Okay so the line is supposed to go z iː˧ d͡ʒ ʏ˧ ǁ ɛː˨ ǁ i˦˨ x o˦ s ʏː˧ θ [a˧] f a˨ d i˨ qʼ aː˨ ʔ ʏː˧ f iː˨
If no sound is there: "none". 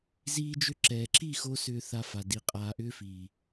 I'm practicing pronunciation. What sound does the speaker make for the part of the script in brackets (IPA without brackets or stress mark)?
a˧